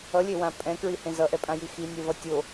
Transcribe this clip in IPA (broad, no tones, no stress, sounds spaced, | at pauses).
ʌ lʲ e w ã pʼ ɛ̃ k ɹ i h ẽ z ʌ ʔ ɛ pʼ ã j i x i nʲ ɛ v ʌ tʲ o